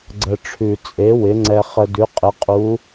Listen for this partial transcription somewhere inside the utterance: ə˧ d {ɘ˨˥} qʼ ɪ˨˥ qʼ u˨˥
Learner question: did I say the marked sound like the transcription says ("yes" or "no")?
no